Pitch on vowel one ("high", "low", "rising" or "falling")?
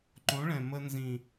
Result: rising